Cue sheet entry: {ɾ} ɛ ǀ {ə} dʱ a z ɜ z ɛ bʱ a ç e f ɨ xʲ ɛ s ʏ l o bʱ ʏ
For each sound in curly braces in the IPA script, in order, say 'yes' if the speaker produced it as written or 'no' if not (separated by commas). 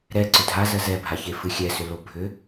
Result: yes, no